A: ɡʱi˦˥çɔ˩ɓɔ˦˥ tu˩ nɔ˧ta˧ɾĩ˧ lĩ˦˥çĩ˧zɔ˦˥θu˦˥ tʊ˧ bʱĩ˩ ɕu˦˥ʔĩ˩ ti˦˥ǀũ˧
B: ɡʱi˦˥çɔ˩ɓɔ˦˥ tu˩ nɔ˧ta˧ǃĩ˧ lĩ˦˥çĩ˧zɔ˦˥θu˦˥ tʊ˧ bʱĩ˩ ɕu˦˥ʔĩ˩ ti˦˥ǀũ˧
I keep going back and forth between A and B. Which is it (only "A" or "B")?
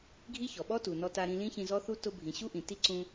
A